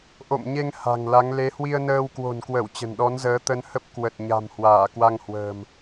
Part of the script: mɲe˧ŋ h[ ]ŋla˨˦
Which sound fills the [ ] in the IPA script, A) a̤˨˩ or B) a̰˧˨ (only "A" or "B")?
A